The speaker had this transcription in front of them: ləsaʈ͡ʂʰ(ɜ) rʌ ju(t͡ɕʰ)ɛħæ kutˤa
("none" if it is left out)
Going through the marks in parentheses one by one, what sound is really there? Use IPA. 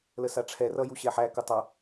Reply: ɛ, ɕ

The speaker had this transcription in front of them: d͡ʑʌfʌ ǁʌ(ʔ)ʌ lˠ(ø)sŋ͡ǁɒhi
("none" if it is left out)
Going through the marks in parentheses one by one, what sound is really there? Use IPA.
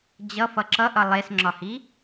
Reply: ʔ, e

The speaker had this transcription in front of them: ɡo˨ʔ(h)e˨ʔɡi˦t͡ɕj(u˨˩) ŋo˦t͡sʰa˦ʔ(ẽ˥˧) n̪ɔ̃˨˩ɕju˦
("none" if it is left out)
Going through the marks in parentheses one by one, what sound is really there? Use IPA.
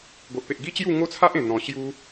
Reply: p, u˥˧, ẽ˨˩

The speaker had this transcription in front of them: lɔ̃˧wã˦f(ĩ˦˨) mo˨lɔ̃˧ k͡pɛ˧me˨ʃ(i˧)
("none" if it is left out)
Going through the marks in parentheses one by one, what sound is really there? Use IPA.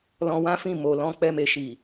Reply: ĩ˦˨, i˨

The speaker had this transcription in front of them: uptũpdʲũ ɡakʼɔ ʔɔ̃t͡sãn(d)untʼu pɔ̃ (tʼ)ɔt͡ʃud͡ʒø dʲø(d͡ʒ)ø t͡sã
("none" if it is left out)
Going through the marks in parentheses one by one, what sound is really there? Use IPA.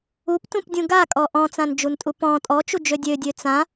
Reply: d͡ʒ, tʼ, dʲ

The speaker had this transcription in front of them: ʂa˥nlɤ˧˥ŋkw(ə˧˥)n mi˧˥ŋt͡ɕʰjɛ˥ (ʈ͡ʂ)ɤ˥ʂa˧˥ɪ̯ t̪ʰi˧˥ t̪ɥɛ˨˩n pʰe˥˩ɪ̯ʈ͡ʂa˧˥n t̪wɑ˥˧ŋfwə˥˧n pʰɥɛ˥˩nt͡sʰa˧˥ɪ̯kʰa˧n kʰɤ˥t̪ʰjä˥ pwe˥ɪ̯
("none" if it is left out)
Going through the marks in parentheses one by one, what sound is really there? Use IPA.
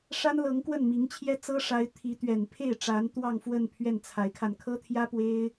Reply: ə˥˩, t͡s

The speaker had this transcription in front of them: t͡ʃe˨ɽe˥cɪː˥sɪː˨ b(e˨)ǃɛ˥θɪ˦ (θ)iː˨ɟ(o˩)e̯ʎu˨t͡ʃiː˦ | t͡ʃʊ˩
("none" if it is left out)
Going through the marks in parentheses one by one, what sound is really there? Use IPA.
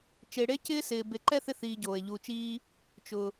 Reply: e˨, θ, oː˩

